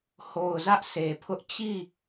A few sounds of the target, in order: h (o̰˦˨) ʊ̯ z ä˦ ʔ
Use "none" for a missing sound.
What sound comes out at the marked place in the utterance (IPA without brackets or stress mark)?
o˨